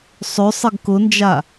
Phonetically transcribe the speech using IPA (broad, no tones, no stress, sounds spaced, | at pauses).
sˤ ø sˤ ɪ ɡ k ʊ n d͡ʒ a